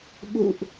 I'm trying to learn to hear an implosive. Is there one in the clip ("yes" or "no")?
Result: yes